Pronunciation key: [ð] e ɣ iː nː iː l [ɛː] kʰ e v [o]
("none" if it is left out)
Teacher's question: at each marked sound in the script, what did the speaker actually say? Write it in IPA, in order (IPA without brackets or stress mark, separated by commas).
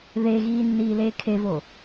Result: ð, eː, o